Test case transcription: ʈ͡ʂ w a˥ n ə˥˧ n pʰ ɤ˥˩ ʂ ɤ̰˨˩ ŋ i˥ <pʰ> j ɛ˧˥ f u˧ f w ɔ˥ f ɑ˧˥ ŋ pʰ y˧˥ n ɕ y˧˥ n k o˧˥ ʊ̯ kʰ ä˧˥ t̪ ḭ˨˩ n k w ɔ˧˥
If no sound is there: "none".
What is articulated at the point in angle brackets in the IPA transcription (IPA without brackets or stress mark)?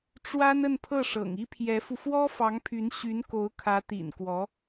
pʰ